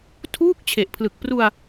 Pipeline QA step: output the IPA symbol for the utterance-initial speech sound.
tʰ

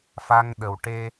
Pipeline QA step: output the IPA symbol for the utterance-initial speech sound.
f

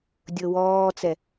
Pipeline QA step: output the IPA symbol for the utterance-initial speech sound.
dʲ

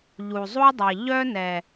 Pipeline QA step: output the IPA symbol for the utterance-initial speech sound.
ʎ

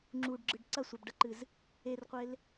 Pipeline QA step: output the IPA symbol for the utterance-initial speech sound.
ŋ͡ǁ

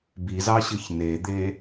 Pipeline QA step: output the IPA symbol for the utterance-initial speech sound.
b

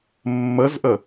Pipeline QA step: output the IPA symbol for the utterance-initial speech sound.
mː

